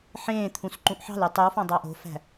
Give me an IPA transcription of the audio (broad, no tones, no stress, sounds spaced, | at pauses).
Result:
ħ ẽː t̪ʰ ũ s ǃ ũ ʔ ħ ɑ̤ l y tˤ y w f ɑ̃ dˤ ɑ ʔ o̤ f æ̤